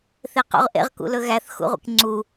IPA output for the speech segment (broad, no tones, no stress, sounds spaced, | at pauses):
θ e q ṵ ʁ ʔ ḛ ʁ k ṵ l ɵ ɣ æ θ x ṵ ʁʷ ḛ k ŋ͡ǀ u